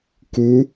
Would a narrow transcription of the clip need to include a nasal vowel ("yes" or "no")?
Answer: no